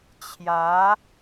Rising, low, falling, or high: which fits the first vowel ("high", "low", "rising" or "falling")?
rising